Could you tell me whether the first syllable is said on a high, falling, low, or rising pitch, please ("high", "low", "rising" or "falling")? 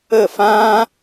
falling